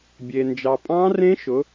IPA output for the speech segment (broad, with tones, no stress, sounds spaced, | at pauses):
bʲ e˨ n d͡ʒ ɑ˨ pʼ ɑ̃˦˥ r ẽ˦˥ ʃ ʊ˨˥